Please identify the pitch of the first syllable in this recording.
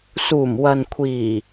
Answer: low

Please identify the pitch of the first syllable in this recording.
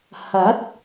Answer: rising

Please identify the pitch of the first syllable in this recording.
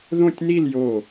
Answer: falling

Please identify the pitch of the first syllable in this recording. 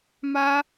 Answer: high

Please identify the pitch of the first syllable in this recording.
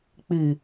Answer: low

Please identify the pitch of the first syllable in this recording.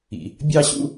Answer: low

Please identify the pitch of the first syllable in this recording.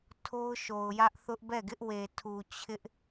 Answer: high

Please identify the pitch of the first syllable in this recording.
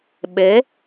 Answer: rising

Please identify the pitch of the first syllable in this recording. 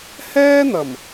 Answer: high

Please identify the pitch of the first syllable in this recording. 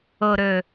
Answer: low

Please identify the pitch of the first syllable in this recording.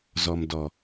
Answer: low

